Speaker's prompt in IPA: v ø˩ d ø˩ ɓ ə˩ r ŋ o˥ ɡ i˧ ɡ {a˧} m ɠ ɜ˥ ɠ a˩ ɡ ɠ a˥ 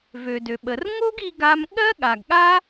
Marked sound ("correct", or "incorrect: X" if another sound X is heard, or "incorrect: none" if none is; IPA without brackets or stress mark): correct